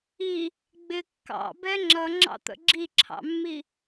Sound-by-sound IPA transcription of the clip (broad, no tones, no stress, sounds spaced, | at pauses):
i | ɡ͡b ɪ kː ɑ̰ b ɛ ŋ͡ǁ ʌ ŋ͡ǁ ɑ̰ t̪ ə̰ ɡ͡ǁ i ǁʰ ɑ̰ mː i